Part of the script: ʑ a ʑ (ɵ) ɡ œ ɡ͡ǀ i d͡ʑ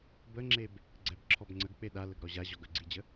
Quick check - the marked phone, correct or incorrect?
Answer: incorrect